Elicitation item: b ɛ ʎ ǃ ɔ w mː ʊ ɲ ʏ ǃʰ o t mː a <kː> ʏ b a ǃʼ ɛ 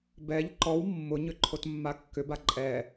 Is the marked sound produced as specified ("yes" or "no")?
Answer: yes